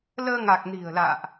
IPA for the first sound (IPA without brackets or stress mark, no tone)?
l